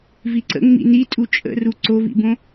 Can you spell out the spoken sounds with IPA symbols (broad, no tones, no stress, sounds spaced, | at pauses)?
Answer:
v i ǀ ə̰ ŋ͡m ḭ n i tʼ u t͡ʃʼ ə̰ r u ǀ o v ḭ b õ